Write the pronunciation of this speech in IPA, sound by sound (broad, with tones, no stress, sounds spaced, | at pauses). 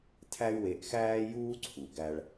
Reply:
tʰ æ˥ y̯ w e˧ ʔ x æː˥ j uː˥ ǀʰ u˩ ɡ æ˧ ɭ